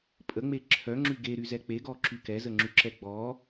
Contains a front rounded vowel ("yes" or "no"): yes